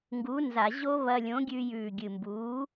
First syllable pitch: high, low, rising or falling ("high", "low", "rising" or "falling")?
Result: rising